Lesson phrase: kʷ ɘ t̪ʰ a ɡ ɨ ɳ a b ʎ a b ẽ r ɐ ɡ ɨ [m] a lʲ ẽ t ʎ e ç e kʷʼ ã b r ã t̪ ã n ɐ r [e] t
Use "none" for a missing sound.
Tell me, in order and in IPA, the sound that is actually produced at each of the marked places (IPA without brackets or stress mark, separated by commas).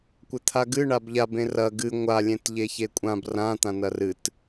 ŋʷ, ɨ